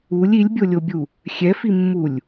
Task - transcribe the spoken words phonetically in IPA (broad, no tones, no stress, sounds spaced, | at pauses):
u lʲ i lʲ bʲ o lʲ o bʲ u | xʲ ɛ f i mː u lʲ